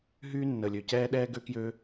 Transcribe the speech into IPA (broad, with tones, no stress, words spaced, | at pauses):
ɦyː˥ nːə˩lʲø˩cɛː˥ɗɛː˥ ɡø˥kjø˥